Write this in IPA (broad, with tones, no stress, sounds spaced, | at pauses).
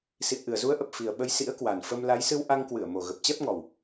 s ḭ˧˨ ə̯ ʔ ɨ˨˩ ə̯ z u˨˦ ə̯ ʔ ə˨˩ p̚ f i˨˩ ə̯ ɓ ə˨˦ j s ḭ˧˥ ə̯ k w a˨˩ n f ə˧ m l a˨˦ j s ɨ˧ w ʔ a˧ ŋ k w ɨ˧˩ ə̯ m o˨˩ ɣ ə˨˩ p̚ t͡ɕ ɛ˦˥ p̚ ŋ ɔ˨˩ w